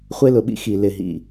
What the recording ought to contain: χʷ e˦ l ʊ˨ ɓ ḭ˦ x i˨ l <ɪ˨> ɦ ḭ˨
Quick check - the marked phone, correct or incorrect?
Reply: correct